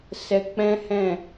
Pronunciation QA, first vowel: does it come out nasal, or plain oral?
oral